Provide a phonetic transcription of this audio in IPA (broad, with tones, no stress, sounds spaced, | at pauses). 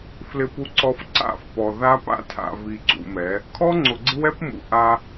f l ɪ˨ p u˨ ǀ ɔ˨ f ǀ a̰˦˨ f p ɔ˨ ð a˦ p a̰˦ tʰ a̰˨ v i˨ ǀ ṵ˨ m ɛ˨˦ | kʰ ɔ˦ ŋ͡ǀ ʊ˨ ɡ͡ǀ ɪ˦ w ɛ˦ p m ṵ˨ ʔ a˦